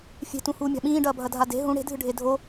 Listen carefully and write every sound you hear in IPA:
fʲe̤tũ huːmʲa̤ɓĩːɖɐː bʱɐdʱade̤ ɦũ ɽe̤dʱɨɖʱe dʱo

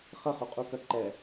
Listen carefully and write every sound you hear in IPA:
χɘχuqʼukɐ ǃɛ

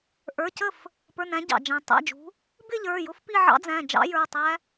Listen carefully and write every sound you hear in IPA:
ʔə˞˩˧˩cə˥˩f | pə˞˩˧˩næ̃˩˧ ɟɑ̰˩ d͡ʒæ̃˩tˤæ̰˩˧˩d͡ʒṳ˩˧ | bɪ˥˧ʎə˞˩˧˩ jʊ˦˥fpi˥˧ʕɑ̰˦˥d͡zæ̃˩˧˩ d͡ʒɑ̰˦˥jə˞˩˧˩ tˤæ˦˥

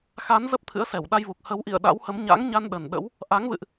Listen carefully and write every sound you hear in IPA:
xa˨˦n zə˦˥p̚t̪ʰɨ̰˧˥ə̯ sɛ˧˩wɗa˧jvu˨˩k̚ hə˨˦wʔḭ˧˨ə̯ɗa̰˧˥whə˨˦m ɲa̰˧˥ŋɲa˧n ɗə˨˩n ɗə̰˧˥w | ʔa˨˦ŋvɨ̰˧˨ʔ

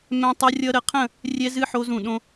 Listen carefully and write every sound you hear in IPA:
mɛ̃˧ tˤʌ˧rʲʌ˧ ɾə˧qʰə̃˥˧ | rʲɛ˧zɨ˧ ħo˧zũ˧˩ɗõ˧

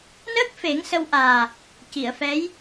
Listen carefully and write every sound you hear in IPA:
nəː˦˥k̚fe˨˩˦ŋ sə˧wʔaː˨˩ | ci˨˩˨ə̯fɛ˧˥j

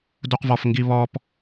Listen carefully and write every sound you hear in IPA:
duqvɔfŋɡi βɔp

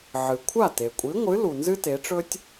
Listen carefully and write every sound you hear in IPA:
ʕɨ˩kʷʰa˥˩ te˩kʷʼi˨˥ŋʷɨ˨˥ lu˩nzɨ˦te˩˧ʈ͡ʂɵ˦tʲ

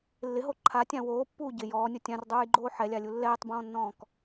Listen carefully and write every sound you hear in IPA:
lːɪɦo ǃʰatʲã woːpːuː ɟɪ jɔːnʲʊ tʲãrdˤuːjɡ͡ǃoː ħɛlʲalʲu lːɛːtˤbɔ̃ːnːɔ̃ːk

